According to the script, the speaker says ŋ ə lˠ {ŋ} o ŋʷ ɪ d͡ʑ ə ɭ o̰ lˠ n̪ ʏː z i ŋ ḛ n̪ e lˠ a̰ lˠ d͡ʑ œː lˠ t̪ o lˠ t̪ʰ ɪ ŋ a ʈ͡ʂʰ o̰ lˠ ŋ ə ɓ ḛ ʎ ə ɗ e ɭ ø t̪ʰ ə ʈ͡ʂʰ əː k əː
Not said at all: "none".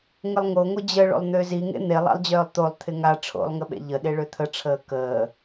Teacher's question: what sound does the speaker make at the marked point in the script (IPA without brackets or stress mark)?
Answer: ŋ